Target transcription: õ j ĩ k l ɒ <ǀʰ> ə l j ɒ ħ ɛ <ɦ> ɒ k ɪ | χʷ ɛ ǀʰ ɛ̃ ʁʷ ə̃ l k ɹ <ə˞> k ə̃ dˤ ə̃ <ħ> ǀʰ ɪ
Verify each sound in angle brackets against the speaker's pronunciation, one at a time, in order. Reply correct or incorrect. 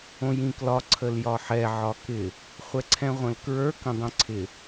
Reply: correct, incorrect: ʕ, correct, incorrect: none

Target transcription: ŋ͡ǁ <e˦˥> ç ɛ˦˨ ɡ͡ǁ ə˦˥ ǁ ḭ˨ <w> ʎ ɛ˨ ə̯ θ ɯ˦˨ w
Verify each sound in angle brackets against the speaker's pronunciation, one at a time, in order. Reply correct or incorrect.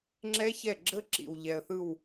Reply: incorrect: ɛ˦˥, correct

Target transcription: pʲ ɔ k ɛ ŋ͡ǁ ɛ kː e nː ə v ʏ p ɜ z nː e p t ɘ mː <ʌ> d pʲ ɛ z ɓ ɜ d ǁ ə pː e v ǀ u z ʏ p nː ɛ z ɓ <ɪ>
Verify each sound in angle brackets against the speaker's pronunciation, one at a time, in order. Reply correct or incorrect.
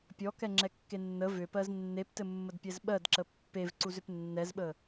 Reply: incorrect: ə, incorrect: ə

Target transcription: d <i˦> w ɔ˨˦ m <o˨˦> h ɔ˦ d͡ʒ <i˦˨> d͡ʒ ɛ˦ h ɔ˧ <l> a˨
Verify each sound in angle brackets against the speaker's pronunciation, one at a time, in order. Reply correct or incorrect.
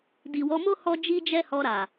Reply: incorrect: i˨, incorrect: o˦, incorrect: i˦, incorrect: ɾ

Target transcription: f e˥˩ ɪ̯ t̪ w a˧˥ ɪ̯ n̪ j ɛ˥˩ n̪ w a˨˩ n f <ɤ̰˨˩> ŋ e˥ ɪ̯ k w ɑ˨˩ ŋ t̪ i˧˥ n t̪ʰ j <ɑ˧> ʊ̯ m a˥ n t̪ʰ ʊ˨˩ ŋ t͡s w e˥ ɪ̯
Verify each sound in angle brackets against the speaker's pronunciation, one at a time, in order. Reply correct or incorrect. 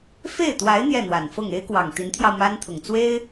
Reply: incorrect: ɤ˥˩, correct

